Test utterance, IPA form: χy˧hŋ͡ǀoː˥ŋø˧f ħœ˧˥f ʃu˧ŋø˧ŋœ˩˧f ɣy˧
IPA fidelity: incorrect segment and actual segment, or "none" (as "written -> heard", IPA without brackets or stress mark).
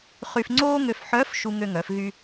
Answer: h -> f